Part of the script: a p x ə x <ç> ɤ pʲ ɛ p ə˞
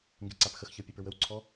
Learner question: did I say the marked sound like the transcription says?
yes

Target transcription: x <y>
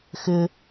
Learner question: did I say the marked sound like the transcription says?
no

